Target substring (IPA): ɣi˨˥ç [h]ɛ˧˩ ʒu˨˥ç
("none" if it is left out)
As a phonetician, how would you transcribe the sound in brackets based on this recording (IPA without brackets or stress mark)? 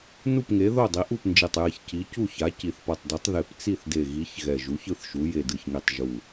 ɣ